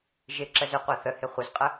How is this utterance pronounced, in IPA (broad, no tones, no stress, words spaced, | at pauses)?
ʒɪǁəz ʏqʷa θəhɪ χʷəzqʼə